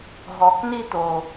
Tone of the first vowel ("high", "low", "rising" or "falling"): low